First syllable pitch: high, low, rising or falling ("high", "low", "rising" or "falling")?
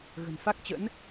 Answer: low